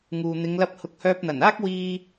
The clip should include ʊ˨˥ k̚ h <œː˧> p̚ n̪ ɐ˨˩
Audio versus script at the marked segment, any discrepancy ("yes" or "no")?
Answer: no